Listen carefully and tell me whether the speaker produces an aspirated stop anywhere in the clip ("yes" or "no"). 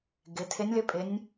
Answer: yes